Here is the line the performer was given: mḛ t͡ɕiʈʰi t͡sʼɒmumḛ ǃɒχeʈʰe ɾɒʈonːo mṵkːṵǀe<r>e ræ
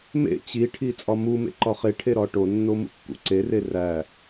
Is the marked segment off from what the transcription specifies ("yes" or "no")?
no